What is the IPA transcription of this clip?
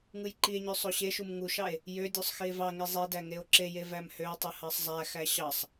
ŋ ɯ j ǃ i e̯ ɲ ø sˤ o ɕ e ʃ u m ŋ u ʃ ɑ e̯ | j ø dʲ o sˤ x i e̯ v ɑ ŋ i zˤ e d æ ŋ e o̯ ǁ e j e v æ m h ø o̯ tˤ ɯ h ɑ sˤ zˤ æ x æ ɕ ɑ sˤ

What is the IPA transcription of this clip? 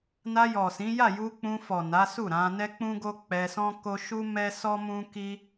n a˧ j ɔ˨ s ĩ˨˦ j a˦˨ j u˧ k͡p ũ˧ f ɔ˨ n a˨˦ s u˦˨ ɾ ã˧ n ɛ˦ k͡p ũ˦ ɡ o˦ k͡p ɛ˧ s ɔ̃˦ k o˦ ʃ u˦ m ɛ˦ s ɔ˦ m ũ˦ k i˦

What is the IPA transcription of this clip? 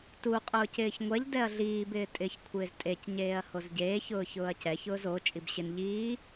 t u qʼ ʊː c ɪː ç ŋʷ ɛ ʎ d ɛ ɐ̯ ɮ iː b ɪː tʼ ɪ ç kʷʰ ɪː z tʼ e c ɲ eː ɐ̯ h o z ɟ eː ç ʊː ç ʊː ɐ̯ c ɛ ç ʊː z o t͡ʃʼ i b ɕ ɪ n ʎ iː

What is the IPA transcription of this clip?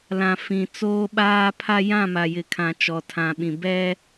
l ã˨ f ĩ˨ t͡s oː˦ ɓ aː˦ pʰ a˦ j ã˦˨ m a˨ j ɪ˨ kʰ ã˨ t͡ʃ ɔ˨ tʰ ã˨ ɓ ĩ˨ b ɛ˦

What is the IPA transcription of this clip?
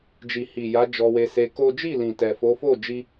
d͡ʒ i˨ h i˨ j a˨˦ d͡ʒ ɔ˧ w e˧ s e˧ k o˦ d͡ʒ i˦˨ l ĩ˨ t ɛ˨ f o˨˦ f o˦˨ d͡ʒ i˧

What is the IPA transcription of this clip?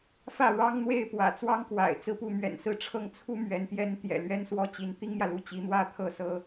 f ä˥˩ ɻ ɑ˥ ŋ n̪ w e˥˩ ɪ̯ p w ä̰˨˩ t͡s w ɑ˥ ŋ k w a̰˨˩ ɪ̯ t͡s ɹ̩˥˧ p u˥˩ m ɥ ɛ̰˨˩ n s ɹ̩˥˧ ʈ͡ʂʰ ɤ˥˩ ŋ t͡sʰ u˥ m ɥ ɛ˧˥ n t̪ j ɛ˥ n t̪ j ɛ̰˨˩ l ɥ ɛ˥ n s w ɔ˥ t͡ɕ i˧˥ n t̪ i˥ ŋ m j ä˨ l u˥˩ t͡ɕ i˧˥ n̪ w ä˥ t̪ʰ ɤ˥˩ s ɤ˥

